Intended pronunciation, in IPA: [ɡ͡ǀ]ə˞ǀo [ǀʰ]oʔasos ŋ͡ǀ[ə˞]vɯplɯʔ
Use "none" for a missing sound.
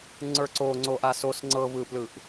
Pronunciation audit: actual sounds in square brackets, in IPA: ŋ͡ǀ, ŋ͡ǀ, ɤ

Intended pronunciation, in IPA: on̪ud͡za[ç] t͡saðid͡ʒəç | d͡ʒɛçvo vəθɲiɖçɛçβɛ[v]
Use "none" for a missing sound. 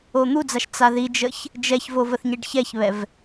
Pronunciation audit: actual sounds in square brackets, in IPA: ʃ, v

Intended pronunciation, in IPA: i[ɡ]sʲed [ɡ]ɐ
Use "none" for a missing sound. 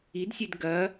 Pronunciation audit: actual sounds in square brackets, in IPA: d, ɡ

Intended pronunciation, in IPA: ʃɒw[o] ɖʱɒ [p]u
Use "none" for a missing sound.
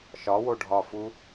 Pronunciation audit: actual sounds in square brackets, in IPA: o, f

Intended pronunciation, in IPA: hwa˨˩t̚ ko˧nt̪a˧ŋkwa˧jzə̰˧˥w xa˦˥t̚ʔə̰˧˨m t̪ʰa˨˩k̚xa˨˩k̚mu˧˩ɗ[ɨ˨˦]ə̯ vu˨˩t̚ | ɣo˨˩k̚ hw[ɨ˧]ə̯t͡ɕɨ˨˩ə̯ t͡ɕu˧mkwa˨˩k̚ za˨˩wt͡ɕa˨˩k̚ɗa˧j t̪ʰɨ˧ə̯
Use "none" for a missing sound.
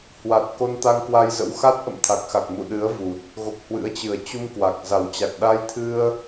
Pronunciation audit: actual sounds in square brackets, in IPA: ɨ˨˦, ɨ̰˧˥

